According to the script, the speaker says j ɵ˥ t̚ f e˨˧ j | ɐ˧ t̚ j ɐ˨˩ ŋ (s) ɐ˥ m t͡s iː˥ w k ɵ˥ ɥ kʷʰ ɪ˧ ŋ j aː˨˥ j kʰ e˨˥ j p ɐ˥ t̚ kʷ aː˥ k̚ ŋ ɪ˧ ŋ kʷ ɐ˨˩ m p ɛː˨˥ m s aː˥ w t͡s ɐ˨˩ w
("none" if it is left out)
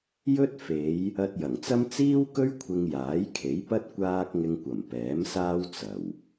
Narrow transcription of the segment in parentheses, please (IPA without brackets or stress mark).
t͡s